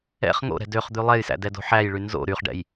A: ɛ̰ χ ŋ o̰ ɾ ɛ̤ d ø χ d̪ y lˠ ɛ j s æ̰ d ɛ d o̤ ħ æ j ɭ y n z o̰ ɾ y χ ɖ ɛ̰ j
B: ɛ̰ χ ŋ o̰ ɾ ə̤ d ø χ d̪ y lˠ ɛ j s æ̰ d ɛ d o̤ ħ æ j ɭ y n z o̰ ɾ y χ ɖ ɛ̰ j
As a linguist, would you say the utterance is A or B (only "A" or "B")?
A